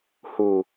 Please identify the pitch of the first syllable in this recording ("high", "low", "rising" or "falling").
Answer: low